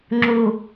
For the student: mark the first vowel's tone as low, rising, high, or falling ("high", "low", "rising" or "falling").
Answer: low